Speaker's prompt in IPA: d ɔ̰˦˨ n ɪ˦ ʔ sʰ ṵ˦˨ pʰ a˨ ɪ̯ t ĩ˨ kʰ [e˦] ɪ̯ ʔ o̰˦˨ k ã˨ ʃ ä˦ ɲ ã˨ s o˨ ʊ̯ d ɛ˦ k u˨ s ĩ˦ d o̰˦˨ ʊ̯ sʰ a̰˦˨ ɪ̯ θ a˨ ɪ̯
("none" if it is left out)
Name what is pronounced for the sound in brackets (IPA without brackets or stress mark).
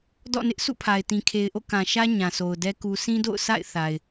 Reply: e˨